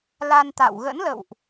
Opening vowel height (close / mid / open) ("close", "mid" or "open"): open